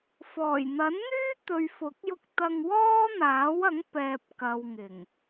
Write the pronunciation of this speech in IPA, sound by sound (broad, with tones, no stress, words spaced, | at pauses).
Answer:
fɔː˨˩jn̪ɐ˨˥nn̪yː˥ t̪ɵ˨ɥfʊ˨˥k̚jʊ˧k̚ t̪ɐ˧ŋwɔː˥n̪aː˨˥wɐ˨˥ŋ pɛː˨p̚kɐ˨wŋɪ˨˩ŋ